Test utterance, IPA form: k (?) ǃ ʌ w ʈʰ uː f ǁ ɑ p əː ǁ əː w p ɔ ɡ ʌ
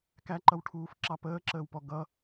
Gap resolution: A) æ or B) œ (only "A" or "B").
A